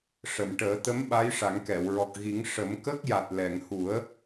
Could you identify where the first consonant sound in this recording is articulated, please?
retroflex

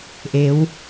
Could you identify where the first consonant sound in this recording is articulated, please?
glottal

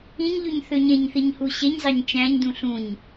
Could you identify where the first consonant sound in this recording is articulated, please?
palatal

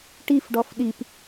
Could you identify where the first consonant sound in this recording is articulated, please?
retroflex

